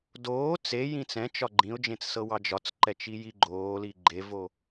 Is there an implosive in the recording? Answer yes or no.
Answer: no